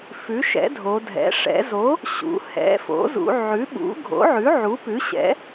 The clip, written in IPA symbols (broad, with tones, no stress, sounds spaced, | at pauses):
f ʉ˩˥ ʃ ɛ̰˩˥ dʱ o˩˧ dʱ ɛ̰˩˥ ʂ ɛ̰˩˧ z o˩˥ | ɕ ṵ˩˧ h ɛ̰˩˥ f o̰˩˥ z ṵ˩˧ ʕ ʉ˩˥ ɓ ṵ˩˥ ɡʱ o̰˩˥ ʕ ʉ˩˥ ʕ u˩˥ p ʉ˩˥ ɕ ɛ̰˩˥